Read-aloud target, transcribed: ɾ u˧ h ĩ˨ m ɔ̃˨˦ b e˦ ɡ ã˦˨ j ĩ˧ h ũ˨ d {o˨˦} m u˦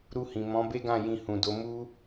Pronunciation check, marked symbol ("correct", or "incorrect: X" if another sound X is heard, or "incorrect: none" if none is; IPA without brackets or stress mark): correct